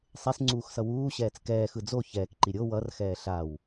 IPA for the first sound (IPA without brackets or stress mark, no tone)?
sˤ